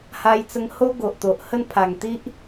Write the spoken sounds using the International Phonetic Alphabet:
h a˧ j t͡s ə˧ ŋ h o˦ ɡ o˨ ʔ t̪ o˨ ʔ h ə˥˧ n pʰ a˨˩ ŋ t̪ i˦ ʔ

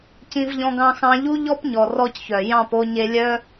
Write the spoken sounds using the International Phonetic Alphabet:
c ĩ˦ v ʎ ɔ̃˦ ɡ ɑ̃˦ x ɑ̃˦ ʎ u˦ ʎ ɔ˦ p ɲ ɔ˨ r ɔ˦ c ç œ˨ j ɑ̃˦˨ p o˧ ɲ e˧ lʲ œ˦

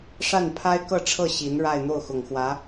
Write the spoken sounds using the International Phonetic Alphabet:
ʂ a˥˩ n pʰ a˥ ɪ̯ k ɤ˥˧ ʈ͡ʂʰ ɤ˥˩ ɕ i˧˥ n ɻ a˥˧ ɪ̯ n̪ o˥˩ ʊ̯ x ʊ˨˩ ŋ x w ä˧˥

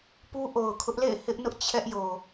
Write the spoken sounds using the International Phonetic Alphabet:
p u˦ ʔ o˨ ʊ̯ kʰ ʊ˦ ʔ l ḛ˦˨ ɪ̯ h ɪ˦ ʔ n ʊ˦ ʔ t͡ɕʰ ɛ˦ ʔ j o˨

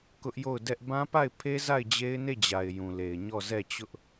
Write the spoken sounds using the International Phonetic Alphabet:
k ʊ˦ ʔ j o˦˨ ʊ̯ d ɛ˦ ʔ b ã˦ p a˦˨ ɪ̯ pʰ e˦ z a˦˨ ɪ̯ d͡ʑ e˦ ɪ̯ n e˦˨ d͡ʑ a˨ ɪ̯ j ũ˨ l e˨ ɪ̯ ɲ ɔ˦˨ z ɛ˦˨ t͡ɕ ʊ˦ ʔ

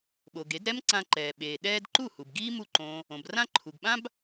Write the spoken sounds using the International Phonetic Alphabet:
ɓ o˩ ɡ e˩˥ d ɾ ɛ˥ m ǀ ã˧ ǃ ɛː˩ ɓ eː˩ ɗ ɛː˥ d ǃ u˥˩ h u˩ b ɡ iː˥ m u˥˩ ǃ õː˧ | õ˩ b r ã˥ ǃʰ u˩ ɡ ɓ ã˥ b

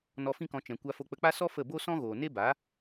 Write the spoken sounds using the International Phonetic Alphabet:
n ɔ˧ f ĩ˦ k ɔ̃˧ t͡ʃ ɛ̃˨ kʷ a˧ f o˧ k͡p ə˧ k͡p a˦ s ɔ˦ f ə˦˨ b o˦ s ɔ̃˦ ɣ oː˨ n e˦ b a˨˦

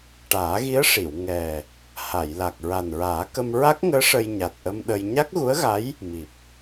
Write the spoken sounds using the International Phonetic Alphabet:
ʈ aː˨˩˦ ɣ i˧˥ ə̯ ʂ i˨˩˨ w ŋ ɛ˨˩ | h a˨˩˨ j l a˨˩ k̚ ɹ a˨˩ n ɹ aː˨˩˦ k ə˧ m ɹ a˦˥ k̚ ŋ əː˧˥ ʂ ə˧ j ɲ a˨˩ t̚ ʔ ə˧ m ɗ ə˧ j ɲ a˦˥ k̚ ɣ u˧˥ ə̯ ɣ a˧˥ j | m i˨˩ p̚

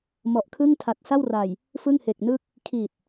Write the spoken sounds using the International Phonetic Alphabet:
m ɔ˨˩ ʔ kʰ ɯ˥˩ ŋ tʰ a˨˩ t̚ s a˥˩ w r a˨˩ j | f ɯ˥˩ ŋ h e˨˩ k̚ n ɯ˥˩ k̚ | kʰ i˨˩ t̚

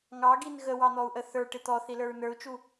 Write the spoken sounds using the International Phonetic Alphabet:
ŋ ɑ ɡ i n ɣ ə w ɑ n̪ ɔ u̯ ʔ ə θ ə˞ ʈ ɪ t̪ ɔ θ i l ə˞ ɹ n ə˞ u̯ t͡ʃ u

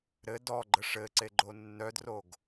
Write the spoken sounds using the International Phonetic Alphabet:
ɾ ɘ d ɔ ɡ͡ǃ ə ʂ ɘ ǀ e ɡ͡ǃ o nː œ d r o ɡ

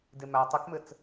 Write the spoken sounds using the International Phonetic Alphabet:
d e m æ tˤ ɨ k m ɘ t͡s

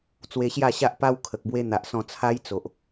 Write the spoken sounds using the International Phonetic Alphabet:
t͡s w e˧ ɕ j a˥˧ ɕ a˦ ʔ p a˦ w kʰ ə˨ k̚ b w e˦ n̪ a˨ ʔ s ɔ̃˧ t͡sʰ a˦ j t͡s o˨ ʔ

